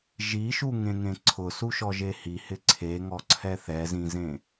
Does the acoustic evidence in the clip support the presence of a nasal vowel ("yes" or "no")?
yes